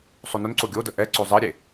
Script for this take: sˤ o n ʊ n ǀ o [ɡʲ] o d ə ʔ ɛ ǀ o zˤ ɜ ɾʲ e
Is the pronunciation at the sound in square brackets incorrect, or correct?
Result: correct